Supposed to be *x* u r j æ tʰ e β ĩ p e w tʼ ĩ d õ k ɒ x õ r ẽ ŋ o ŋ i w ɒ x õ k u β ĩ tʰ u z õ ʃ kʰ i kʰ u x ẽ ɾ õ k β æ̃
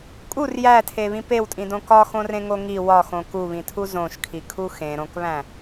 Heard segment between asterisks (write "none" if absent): kʼ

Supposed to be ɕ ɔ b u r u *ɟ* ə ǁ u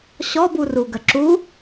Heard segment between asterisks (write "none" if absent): ɡ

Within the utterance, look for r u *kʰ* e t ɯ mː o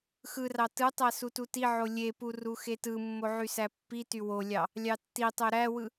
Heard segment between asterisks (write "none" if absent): x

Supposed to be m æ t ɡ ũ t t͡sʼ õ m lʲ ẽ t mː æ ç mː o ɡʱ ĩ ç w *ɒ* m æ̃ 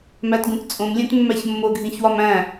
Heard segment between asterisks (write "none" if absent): ɒ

